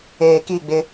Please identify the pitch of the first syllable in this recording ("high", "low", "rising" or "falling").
low